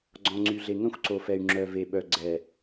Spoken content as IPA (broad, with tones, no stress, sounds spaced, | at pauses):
ɡ͡ǀ ɔ̃˨ ŋ͡ǀ y˨ ɮ e˨ ŋ œ̃˦ xʷ ǀ o˨ f ɛ˨ y̯ ŋ͡ǁ œ˨ v e˨ ɓ œ˨ ɡ͡ǀ ɛ˨